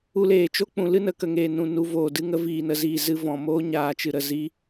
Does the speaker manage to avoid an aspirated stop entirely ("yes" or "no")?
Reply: yes